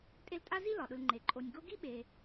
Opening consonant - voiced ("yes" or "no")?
no